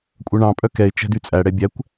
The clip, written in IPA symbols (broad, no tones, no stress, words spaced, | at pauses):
kʷʼœɳɑ̃ pʼœkɛɪ̯ t͡ʃɛ̤dyt͡sʼæ ɽɛbʲækʷ